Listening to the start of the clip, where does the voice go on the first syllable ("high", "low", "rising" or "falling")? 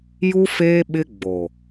high